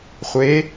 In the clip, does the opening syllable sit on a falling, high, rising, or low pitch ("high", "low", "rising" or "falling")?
rising